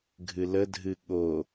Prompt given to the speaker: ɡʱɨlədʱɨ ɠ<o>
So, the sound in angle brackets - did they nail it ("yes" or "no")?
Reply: yes